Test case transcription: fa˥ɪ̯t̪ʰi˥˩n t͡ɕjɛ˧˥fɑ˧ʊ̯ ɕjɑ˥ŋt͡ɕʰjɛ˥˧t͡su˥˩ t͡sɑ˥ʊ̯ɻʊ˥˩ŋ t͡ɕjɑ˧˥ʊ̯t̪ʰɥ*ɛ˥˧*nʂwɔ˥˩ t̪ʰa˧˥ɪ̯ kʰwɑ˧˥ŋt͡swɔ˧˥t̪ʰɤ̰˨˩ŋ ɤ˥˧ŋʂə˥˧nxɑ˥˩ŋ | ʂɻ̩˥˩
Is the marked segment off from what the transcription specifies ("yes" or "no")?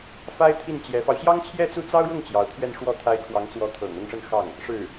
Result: no